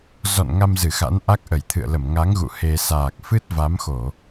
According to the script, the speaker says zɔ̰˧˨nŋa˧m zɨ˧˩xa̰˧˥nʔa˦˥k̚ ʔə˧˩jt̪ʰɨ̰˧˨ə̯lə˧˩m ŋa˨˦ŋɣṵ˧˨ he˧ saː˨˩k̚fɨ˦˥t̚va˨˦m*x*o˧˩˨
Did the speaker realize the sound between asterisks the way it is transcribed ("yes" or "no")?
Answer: yes